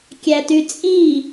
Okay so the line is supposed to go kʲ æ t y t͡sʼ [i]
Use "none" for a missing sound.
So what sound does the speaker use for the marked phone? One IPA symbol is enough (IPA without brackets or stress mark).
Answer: i